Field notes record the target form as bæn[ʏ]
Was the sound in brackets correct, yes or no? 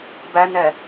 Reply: no